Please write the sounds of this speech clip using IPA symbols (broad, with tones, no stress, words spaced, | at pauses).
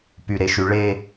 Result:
py˨ɾe˨ʃy˨ ɭe˦